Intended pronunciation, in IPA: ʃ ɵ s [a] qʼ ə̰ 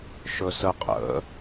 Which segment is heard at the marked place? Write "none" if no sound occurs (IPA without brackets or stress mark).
ə